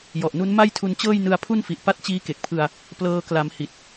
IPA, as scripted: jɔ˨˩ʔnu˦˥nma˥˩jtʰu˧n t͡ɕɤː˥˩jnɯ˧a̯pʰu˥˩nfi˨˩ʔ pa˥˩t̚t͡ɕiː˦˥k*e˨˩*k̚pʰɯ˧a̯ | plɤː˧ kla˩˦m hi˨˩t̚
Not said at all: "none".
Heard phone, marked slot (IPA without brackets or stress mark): e˨˩